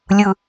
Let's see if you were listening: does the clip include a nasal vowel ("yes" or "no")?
no